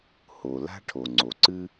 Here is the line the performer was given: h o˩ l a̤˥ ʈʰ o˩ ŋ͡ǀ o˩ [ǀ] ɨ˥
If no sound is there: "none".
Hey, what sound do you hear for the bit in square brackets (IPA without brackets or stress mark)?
ǀ